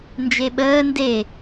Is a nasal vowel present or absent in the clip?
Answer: absent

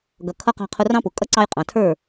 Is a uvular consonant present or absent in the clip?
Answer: present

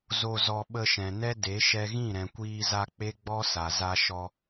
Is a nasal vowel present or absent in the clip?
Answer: present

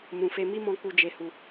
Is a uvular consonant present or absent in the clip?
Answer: absent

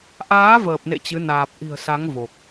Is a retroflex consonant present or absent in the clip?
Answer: absent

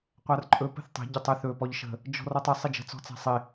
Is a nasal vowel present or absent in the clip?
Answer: absent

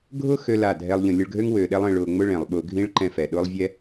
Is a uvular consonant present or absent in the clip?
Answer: absent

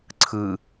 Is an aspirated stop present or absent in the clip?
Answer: present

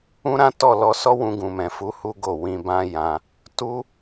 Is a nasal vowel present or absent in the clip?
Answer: present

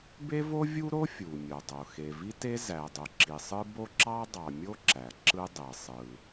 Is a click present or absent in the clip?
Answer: present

